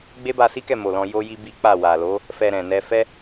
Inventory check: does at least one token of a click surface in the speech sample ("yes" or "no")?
no